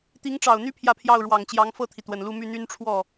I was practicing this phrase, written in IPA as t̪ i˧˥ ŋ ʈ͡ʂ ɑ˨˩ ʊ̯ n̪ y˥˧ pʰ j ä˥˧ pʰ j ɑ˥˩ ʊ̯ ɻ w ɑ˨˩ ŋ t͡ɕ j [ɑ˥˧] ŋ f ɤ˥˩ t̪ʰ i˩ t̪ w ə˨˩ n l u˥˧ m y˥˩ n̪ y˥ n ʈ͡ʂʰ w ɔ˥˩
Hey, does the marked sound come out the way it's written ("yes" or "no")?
no